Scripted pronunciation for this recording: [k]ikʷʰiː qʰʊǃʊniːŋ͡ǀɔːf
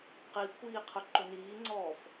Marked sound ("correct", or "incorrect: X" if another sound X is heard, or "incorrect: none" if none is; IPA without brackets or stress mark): incorrect: q